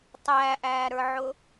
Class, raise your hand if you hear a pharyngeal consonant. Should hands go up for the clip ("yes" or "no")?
yes